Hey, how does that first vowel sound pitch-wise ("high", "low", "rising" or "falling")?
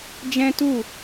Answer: high